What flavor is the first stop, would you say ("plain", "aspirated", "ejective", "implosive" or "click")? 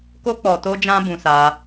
plain